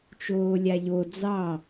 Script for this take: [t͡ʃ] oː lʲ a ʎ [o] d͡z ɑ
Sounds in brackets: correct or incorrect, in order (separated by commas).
correct, correct